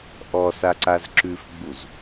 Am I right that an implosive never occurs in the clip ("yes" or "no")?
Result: yes